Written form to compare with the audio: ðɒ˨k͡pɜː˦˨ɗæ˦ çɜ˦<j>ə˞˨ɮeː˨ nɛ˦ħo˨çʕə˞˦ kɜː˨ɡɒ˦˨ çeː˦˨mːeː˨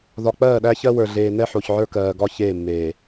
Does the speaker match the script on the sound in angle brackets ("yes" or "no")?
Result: no